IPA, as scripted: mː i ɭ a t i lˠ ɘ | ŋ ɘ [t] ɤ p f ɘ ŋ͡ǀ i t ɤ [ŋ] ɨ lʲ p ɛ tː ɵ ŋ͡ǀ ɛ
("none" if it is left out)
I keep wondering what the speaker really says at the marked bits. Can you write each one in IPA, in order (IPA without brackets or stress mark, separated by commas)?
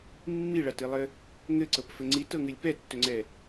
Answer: ǀ, ŋ